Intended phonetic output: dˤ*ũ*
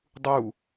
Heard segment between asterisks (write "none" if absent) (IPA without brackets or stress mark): u